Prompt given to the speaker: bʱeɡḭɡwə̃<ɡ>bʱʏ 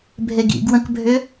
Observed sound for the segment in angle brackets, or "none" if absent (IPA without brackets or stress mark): k